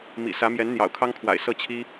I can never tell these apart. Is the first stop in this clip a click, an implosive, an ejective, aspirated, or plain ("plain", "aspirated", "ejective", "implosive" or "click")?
aspirated